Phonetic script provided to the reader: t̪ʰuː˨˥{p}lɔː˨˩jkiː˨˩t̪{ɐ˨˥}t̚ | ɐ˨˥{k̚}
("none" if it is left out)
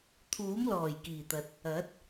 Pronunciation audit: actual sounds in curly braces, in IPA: m, ɐ˨, t̚

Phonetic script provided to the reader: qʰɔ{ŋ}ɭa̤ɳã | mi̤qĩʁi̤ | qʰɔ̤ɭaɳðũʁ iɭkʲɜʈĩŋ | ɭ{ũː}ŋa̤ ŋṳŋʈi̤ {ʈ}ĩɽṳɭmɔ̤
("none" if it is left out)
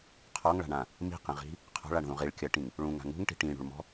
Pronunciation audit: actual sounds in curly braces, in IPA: ŋ, ũ, ʈ

